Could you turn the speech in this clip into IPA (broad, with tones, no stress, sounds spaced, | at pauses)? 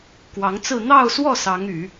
k w ɑ˧˥ ŋ t͡s ɹ̩˥˧ n̪ ɑ˥˧ ʊ̯ s w ɔ˥˩ s ɑ˧˥ ŋ y˨˩˦